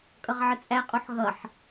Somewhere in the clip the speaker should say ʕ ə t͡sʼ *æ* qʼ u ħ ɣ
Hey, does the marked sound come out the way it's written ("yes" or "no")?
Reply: yes